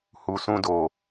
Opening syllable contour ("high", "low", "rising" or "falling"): low